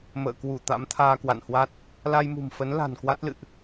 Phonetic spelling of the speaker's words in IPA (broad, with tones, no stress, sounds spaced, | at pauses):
m ə̰ː˧˨ k w u˧˩ t̪ a̰˧˥ m t̪ʰ aː˧ k w a̰˧˨ n h w a˦˥ t̚ | l a˧ j m ṳ˨˩ m f ə˨˦ n l a̤˨˩ n k w a˦˥ t̚ l ɨ̰˧˨ ʔ